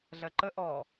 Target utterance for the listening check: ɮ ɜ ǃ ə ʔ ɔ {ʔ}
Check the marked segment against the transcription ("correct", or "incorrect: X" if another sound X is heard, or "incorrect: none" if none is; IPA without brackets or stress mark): incorrect: none